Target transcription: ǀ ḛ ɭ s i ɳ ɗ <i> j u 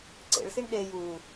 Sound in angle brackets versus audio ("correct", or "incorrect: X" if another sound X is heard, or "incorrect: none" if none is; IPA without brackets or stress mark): incorrect: e